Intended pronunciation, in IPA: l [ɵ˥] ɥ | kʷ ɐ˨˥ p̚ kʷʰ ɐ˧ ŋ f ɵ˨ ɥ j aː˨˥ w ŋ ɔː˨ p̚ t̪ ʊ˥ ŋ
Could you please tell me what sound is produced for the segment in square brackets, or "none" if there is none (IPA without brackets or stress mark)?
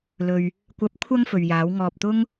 ɵ˨